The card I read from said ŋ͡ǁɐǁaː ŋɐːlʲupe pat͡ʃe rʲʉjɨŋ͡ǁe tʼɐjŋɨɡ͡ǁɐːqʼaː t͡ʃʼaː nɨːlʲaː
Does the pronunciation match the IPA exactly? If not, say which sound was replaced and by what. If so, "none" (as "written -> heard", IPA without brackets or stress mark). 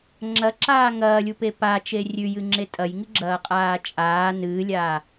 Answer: none